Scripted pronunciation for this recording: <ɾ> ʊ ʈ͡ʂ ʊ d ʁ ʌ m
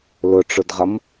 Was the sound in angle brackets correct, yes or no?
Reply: no